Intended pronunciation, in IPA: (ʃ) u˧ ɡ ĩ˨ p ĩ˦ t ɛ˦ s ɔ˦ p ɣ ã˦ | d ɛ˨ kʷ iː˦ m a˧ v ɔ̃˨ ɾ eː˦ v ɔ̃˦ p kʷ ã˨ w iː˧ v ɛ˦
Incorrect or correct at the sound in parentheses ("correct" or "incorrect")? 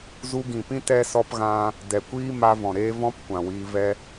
incorrect